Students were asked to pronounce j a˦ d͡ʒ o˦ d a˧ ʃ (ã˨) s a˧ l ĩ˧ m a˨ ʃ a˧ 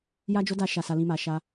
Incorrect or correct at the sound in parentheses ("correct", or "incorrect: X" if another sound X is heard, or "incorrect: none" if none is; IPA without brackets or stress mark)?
incorrect: a˨